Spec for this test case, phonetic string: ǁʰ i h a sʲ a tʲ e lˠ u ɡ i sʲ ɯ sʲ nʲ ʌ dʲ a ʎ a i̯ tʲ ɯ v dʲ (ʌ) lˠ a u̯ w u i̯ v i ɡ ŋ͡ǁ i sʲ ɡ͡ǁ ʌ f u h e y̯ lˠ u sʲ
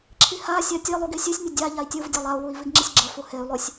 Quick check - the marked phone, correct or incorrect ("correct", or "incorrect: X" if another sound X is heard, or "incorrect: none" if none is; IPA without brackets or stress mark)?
correct